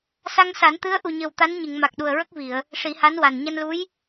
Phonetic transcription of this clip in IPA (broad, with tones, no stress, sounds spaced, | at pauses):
s a˧ ŋ s a˨˩˦ n t̪ ɨ˧˥ ə̯ ʔ u˨˩ ɲ ə˨˩ w t̪ a˧˥ n ɲ ɨ˨˩˨ ŋ m a˨˩ k̚ ɗ u˨˩ ə̯ ɹ ə˦˥ k̚ v i˨˩˨ ə̯ | ʂ i˨˩˦ h a˧˥ n w a˨˩ n ɲ a˧ n l u˧˥ j